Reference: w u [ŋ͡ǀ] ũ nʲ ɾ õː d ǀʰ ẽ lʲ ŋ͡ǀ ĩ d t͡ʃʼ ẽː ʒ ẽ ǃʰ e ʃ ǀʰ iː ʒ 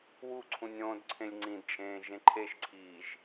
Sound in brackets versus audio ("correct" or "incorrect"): incorrect